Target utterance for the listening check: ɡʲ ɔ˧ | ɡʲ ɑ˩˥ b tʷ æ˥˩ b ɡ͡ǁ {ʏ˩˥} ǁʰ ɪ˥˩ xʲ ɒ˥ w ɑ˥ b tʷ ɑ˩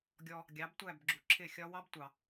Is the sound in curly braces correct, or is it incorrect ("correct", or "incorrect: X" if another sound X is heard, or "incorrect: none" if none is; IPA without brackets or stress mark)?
incorrect: u˩˥